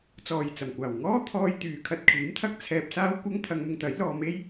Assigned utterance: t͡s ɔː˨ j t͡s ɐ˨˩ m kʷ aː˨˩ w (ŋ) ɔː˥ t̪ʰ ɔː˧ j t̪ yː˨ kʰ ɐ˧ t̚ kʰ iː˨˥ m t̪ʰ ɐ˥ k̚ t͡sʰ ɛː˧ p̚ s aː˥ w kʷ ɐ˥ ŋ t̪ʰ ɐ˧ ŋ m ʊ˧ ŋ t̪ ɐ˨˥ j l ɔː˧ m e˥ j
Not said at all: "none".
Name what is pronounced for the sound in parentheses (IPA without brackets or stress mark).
ŋ